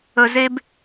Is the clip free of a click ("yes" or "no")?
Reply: yes